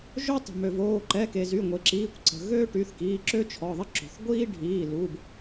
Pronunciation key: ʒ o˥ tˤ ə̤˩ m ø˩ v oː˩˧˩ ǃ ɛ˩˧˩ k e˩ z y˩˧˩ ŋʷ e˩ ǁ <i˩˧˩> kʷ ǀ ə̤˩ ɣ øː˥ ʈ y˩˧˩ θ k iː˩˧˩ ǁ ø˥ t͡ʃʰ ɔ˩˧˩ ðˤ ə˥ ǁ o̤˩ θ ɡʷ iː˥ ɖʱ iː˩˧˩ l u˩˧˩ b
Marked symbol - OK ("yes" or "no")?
no